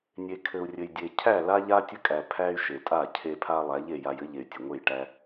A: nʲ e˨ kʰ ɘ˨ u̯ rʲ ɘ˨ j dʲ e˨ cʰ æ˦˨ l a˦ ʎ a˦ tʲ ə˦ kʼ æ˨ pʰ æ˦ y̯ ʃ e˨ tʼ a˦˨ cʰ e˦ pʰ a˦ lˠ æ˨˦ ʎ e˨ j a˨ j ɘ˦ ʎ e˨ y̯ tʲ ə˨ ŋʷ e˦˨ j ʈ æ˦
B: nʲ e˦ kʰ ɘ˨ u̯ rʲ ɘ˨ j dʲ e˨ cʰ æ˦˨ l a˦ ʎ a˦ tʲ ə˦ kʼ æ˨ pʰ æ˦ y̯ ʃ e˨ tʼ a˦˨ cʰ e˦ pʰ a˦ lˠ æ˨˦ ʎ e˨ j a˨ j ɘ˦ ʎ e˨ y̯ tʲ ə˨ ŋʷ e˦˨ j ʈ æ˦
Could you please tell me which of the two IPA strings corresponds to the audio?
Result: A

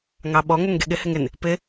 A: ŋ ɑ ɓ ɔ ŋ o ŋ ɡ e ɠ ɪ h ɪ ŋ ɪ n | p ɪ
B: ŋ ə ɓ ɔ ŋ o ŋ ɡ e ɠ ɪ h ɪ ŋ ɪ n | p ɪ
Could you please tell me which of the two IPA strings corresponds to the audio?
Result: A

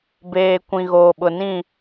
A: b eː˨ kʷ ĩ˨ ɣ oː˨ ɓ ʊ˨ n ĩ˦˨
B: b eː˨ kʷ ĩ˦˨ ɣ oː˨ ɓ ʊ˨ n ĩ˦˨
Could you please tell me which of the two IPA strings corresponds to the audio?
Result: A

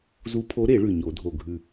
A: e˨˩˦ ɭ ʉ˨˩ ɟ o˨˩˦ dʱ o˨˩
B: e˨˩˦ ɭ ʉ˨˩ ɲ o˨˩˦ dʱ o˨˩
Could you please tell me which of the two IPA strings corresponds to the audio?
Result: B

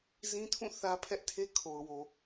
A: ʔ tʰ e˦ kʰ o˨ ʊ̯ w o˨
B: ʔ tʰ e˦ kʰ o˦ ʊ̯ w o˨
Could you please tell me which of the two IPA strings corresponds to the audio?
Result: A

